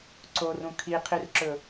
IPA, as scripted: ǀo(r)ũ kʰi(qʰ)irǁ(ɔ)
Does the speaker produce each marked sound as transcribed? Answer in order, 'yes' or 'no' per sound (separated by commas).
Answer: yes, yes, no